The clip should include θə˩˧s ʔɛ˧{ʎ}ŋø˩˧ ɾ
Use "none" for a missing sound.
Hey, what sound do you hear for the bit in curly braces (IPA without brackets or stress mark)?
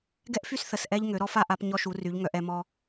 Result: ʎ